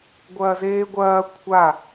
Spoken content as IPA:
ɡʷ ɐː z eː ɡʷ ɐː kʷʰ a

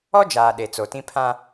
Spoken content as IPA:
ɔ˦ d͡ʒ aː˨ ɗ e˨ t͡s o˨ t ĩ˦ pʰ ã˦

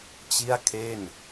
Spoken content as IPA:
t͡ɕ i˥˩ a̯ kʰ e˥˩ n

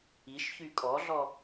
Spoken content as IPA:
i ʃ ç y kʼ ɔ ɮ ɔ

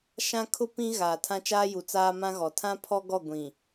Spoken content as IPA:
ʃ ã˦ kʰ ʊ˦ p ĩ˦ ɣ aː˨ tʰ ã˦ t͡ʃ aː˦ j u˨ t͡s aː˦ m ã˦ ɣ ɔ˨ tʰ ã˦ pʰ ɔ˦ ɡ ɔ˦˨ ɡʷ ĩ˨

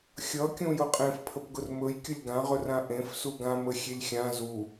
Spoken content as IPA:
xʲ ʌ kʲ ũ j ʊ qʼ ẽ f pʰ ə p ɡ ʊ r m ɵ j kʲ ʊ lʲ ɡ ã ʁ ɵ r ã ʔ ẽ f s u ɡ ã m ə xʲ e lʲ xʲ ã z u

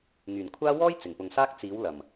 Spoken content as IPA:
ŋ yː˨˩ n kʷʰ aː˥ w ɔː˥ j t͡s ɪ˨˩ ŋ p ʊ˨ ŋ s aː˥ k̚ t͡s iː˨˥ w l ɐ˨˩ m

